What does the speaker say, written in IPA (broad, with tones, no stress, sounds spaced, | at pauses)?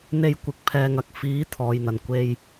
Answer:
n̪ e˧ j kʷ ɪ˨˥ k̚ pʰ ɛː˨ ŋ ɐ˨˥ k̚ f iː˨˥ t̪ʰ ɔː˨ j n̪ ɐ˨˩ n kʷ e˧ j